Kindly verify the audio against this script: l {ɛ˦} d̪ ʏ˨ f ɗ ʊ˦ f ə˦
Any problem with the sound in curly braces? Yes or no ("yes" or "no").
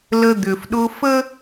yes